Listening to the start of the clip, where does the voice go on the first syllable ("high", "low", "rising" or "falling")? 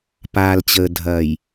low